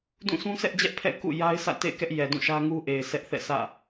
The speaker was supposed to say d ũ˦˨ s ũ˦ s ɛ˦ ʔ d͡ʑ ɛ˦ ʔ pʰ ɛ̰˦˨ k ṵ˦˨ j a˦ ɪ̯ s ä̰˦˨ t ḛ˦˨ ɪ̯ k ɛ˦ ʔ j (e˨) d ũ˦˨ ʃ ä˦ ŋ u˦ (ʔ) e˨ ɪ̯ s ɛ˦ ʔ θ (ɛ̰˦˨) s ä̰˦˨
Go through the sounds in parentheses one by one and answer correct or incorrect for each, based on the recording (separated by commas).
incorrect, correct, correct